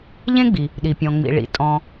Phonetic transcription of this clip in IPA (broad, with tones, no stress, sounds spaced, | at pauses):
ʎ ẽ˦ ɡ͡b i˩ | ɗ i˩ pʲ ɔ̃˩ ŋ͡m ḭ˩ ɭ ḭ˩ tʼ ɔ̃˨